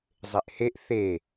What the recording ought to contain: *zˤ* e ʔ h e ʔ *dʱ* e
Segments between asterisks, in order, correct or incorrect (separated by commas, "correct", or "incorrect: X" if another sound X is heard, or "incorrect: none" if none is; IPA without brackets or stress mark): correct, incorrect: θ